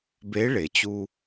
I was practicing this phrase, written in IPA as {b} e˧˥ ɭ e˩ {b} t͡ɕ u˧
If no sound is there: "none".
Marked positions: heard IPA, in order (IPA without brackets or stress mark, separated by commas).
b, none